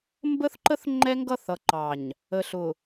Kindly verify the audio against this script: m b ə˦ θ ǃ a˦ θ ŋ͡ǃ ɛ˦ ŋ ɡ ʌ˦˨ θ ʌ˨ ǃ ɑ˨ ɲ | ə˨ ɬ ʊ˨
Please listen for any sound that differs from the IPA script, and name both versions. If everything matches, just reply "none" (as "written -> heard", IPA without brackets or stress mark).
a˦ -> ə˦